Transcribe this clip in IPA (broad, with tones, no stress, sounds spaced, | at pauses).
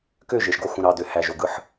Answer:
k ø˦˨ ʒ e˨ ʃ ɡ o˧ x ũ˨ ɾ ɑ˨ d ø˨ h æ˨ ʒ o˨ ɡ ɯ˧ ħ